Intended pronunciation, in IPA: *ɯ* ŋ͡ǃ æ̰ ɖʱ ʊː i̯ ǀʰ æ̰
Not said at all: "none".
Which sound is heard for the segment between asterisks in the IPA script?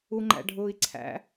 u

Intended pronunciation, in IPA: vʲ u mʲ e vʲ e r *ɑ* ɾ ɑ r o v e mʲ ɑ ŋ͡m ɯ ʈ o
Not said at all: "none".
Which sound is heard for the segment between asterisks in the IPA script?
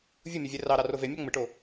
ɑ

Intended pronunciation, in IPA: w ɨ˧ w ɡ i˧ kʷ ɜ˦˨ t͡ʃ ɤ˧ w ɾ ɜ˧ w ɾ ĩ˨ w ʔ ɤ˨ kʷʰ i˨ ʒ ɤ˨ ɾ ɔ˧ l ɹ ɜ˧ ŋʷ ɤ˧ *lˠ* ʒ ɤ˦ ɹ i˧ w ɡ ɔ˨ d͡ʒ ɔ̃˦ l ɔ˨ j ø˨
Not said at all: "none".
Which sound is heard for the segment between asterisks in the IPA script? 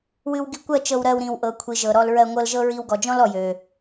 l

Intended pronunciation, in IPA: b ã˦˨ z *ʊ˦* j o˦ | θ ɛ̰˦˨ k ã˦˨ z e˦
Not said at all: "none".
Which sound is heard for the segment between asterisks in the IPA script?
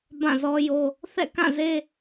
ɔ˦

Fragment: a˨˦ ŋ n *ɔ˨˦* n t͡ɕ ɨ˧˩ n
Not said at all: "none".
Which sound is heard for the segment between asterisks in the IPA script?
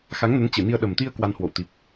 ə˨˦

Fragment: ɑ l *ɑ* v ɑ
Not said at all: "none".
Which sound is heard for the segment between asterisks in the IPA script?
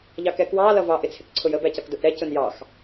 ʌ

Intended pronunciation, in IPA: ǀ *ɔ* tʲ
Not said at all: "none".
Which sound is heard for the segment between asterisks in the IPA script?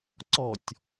ɔ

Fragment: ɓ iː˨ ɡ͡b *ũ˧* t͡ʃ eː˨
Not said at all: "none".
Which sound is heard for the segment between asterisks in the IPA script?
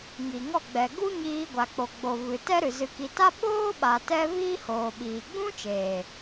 ũ˦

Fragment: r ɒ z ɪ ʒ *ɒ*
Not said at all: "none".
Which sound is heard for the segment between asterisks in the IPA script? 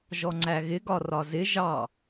ɑ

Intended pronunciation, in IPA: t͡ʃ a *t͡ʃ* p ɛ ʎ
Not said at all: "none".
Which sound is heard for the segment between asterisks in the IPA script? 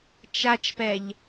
t͡ʃ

